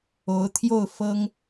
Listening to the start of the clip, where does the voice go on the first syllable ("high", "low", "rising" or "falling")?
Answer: rising